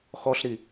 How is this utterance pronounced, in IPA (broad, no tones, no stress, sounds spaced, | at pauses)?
x ɔ ɬ ɾ i